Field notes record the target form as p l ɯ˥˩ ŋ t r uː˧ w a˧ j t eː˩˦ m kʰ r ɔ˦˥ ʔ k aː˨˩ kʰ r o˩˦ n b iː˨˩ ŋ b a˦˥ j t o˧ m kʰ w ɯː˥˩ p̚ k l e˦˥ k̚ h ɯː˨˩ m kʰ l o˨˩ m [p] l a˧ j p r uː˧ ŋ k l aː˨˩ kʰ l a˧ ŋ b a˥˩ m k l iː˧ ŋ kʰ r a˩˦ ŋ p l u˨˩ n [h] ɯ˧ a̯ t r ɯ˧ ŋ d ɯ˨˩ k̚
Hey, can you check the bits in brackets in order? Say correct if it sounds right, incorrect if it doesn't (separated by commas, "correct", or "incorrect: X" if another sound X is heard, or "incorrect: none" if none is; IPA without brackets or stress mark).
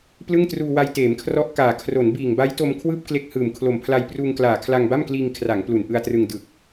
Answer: incorrect: pʰ, incorrect: ʔ